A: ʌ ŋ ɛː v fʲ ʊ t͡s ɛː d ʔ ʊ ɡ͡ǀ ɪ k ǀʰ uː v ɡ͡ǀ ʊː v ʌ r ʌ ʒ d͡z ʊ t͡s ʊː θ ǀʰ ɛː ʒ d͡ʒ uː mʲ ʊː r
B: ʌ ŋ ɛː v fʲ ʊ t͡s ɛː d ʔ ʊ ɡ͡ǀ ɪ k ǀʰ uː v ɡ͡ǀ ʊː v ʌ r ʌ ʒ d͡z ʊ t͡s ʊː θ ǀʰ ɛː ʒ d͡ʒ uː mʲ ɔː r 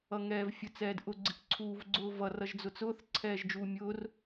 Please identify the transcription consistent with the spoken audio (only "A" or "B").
A